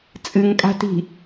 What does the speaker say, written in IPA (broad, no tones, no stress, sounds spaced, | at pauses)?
t͡sʼ ɨ ŋ kʼ a̤ t i̤